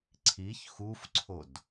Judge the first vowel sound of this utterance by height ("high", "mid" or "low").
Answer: high